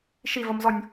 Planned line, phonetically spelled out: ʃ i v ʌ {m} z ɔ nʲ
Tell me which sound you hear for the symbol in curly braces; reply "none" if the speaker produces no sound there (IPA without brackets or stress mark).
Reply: m